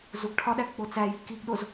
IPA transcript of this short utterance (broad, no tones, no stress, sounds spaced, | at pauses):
z u ɡ ʈʰ ɒ ɗ æ ɡ k͡p o t͡s æ j i k i ɡ ɗ o z